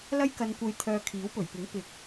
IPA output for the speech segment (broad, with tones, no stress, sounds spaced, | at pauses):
l ɐ˥ j k ɐ˧ n kʷ ɐ˧ j t̪ʰ œː˧ kʰ iː˨˥ w p ɵ˨˩ ɥ p ɪ˨˥ ŋ p ɪ˨˥ k̚